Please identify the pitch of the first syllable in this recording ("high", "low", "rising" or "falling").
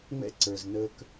high